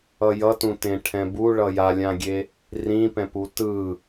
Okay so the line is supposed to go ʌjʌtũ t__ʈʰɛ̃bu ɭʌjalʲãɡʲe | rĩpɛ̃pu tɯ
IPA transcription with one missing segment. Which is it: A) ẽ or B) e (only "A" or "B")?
A